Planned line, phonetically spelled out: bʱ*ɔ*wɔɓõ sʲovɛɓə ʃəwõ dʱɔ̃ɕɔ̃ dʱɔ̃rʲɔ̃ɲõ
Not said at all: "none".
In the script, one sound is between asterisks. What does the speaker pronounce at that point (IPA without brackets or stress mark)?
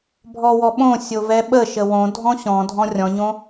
ɔ